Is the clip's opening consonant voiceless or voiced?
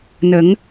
voiced